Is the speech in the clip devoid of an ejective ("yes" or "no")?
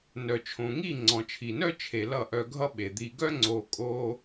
no